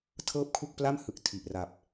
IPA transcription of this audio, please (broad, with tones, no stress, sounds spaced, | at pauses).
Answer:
tʰ ɤː˥˩ p̚ kʰ u˥˩ k̚ p l a˥˩ m h ɯ˨˩ k̚ tʰ i˨˩ ʔ r a˨˩ p̚